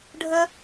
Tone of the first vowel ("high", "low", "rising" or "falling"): high